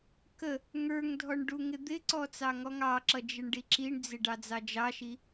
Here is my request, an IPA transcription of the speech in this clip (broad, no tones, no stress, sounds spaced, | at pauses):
k ə | ŋ ə˞ ŋ dʱ ɔ ɳ ɖ u ŋ ɪ d̪ ɪ ǀ ɔ t͡s ɑ ŋ ɔ ŋ ɑ ǁ ʌ d͡ʒ ɪ ɳ ɖ i ǁ i ɳ d͡z ɪ ɖ ɑ d͡z ɑ d͡ʒ ɑ ʃ i